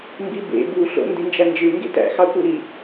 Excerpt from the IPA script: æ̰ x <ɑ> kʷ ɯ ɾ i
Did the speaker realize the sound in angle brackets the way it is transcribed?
yes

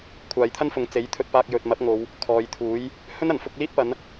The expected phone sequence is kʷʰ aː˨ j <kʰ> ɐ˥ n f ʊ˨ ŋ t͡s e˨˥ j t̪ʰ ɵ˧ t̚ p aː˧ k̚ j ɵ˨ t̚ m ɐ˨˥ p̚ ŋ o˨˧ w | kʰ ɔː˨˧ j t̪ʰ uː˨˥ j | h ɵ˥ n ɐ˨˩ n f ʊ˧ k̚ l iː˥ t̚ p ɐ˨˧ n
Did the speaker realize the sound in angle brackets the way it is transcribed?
no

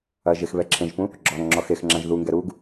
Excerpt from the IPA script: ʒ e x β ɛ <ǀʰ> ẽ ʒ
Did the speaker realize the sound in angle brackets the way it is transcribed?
no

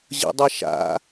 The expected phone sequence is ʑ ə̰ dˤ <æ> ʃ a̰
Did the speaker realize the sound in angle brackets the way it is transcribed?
no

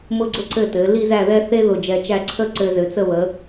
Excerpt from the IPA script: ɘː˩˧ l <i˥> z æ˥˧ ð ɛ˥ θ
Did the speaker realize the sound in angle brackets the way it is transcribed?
yes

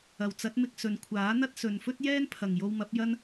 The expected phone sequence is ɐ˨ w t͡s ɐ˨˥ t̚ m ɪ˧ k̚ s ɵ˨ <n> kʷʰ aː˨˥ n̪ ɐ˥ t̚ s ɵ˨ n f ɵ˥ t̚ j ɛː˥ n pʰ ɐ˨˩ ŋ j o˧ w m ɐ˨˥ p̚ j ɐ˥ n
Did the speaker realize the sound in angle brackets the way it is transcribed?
yes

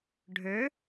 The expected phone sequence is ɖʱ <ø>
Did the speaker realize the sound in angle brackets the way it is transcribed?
yes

